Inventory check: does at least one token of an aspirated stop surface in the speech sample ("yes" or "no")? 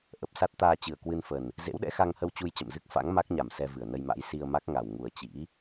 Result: no